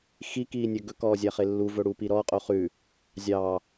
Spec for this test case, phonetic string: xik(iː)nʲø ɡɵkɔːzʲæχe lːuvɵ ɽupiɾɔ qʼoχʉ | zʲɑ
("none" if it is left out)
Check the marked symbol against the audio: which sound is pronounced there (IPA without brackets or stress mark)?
iː